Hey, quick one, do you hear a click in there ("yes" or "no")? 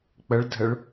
no